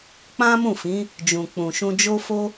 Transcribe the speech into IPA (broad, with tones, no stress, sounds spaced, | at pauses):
k͡p ã˦ m ũ˦˨ f ĩ˨˦ | d͡ʒ ũ˨ k͡p ũ˨ ʃ ũ˧ d͡ʒ o˦ f o˦